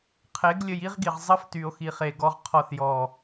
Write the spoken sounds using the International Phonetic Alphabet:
qʰ e˨˦ ɡ lʲ ə˧ j i˦ ʁ ɡ i˨ ʁ zˤ ə˦ f t y˨ o̯ x i˨ χ e˨ ɡ ɔ˦ ʁ qʰ ɔ˦˨ θ j ɔ˦˨

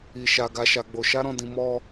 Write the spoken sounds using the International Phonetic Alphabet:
i˨ ʃ a˨ ɡ a˧ ʃ a˧ ɡ͡b o˧ ʃ a˦ ɾ ɔ̃˦˨ d ĩ˧ m ɔ˦

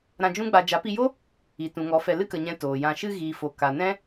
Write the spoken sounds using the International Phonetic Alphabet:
ɾ ã˧ d͡ʒ ũ˦ ɡ͡b a˧ d͡ʒ a˨˦ p i˧ j o˦ | i˨ t ũ˨ ŋ ɔ˨˦ f ɛ˧ l ɨ˦ k ə˨ ɲ ɛ̃˧ t oː˨ j ã˧ ʃ ɨ˧ ɣ iː˨ f o˨ k a˨ n ɛ̃˦

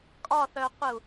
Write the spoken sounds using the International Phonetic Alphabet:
kʼ ɒ θ œ qʷ ɘ u̯

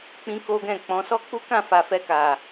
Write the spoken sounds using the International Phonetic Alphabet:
k͡p ĩ˦ k o˦ ɡ ɛ̃˦˨ k͡p ɔ̃˨˦ s ɔ˦ k͡p u˦ k ã˦˨ f a˨ f ɛ˧ k a˨

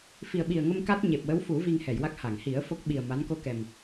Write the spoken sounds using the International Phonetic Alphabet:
f i˨˩ ə̯ ɓ i˨˩ ə̯ ŋ ə˧ m k a˦˥ t̚ ɲ e˨˩ p̚ w ə˧˥ w f u˨˩˦ v i˧ ŋ h ɛ˨˩˨ j w a˦˥ k̚ h a˨˩˨ ŋ h i˨˩˦ ə̯ f o˦˥ k̚ ɓ i˨˩ ə̯ m a˧˥ n k o˧ k ɛ˨˩ m

